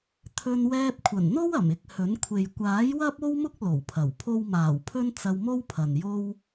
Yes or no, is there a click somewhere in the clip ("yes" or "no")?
no